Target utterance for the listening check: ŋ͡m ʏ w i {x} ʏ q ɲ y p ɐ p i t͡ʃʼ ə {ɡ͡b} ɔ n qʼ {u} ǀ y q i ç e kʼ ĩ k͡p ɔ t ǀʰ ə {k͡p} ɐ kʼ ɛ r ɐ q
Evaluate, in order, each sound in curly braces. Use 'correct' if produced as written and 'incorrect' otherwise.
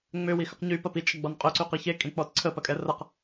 correct, correct, incorrect, incorrect

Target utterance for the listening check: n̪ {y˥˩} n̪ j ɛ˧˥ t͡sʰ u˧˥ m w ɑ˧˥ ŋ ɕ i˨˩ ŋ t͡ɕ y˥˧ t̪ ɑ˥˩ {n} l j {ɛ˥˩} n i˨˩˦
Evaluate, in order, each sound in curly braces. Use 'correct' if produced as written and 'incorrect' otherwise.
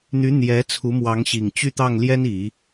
incorrect, incorrect, incorrect

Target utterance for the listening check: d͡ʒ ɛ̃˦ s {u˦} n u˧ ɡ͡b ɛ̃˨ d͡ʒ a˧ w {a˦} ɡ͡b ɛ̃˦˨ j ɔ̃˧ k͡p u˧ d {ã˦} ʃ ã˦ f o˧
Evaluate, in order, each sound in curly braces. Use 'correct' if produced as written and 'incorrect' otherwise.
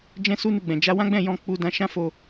correct, incorrect, incorrect

